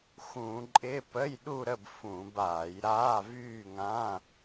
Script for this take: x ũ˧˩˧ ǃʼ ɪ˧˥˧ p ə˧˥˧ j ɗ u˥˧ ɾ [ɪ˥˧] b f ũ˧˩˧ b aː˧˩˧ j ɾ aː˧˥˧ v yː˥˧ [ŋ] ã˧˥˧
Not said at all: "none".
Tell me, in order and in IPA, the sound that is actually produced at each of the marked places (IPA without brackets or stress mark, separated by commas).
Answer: ə˥˧, ŋ